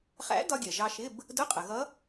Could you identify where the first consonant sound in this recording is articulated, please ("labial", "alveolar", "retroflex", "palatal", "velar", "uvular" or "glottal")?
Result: uvular